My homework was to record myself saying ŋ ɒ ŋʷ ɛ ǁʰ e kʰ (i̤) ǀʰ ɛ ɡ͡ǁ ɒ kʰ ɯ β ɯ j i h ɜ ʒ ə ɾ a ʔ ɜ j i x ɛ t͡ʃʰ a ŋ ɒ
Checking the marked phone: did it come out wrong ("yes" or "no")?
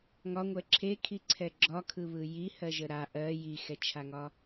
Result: yes